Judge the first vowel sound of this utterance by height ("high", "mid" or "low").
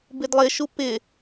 high